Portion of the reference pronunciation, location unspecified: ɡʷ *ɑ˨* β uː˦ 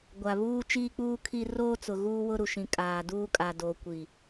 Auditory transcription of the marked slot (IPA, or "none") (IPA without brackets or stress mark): a˨